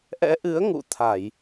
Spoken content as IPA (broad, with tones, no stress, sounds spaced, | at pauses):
ʔ ɛ̰˧˥ ʔ ɨ˨˦ ə̯ ŋ ṵ˧˨ t̪ʰ a˧˩˨ j